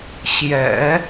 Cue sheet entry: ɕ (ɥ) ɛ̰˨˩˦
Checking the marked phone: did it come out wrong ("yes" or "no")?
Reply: yes